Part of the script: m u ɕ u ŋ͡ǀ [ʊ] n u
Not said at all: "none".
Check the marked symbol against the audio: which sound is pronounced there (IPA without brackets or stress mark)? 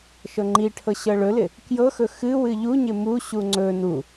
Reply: ɵ